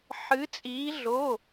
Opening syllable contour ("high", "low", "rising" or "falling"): rising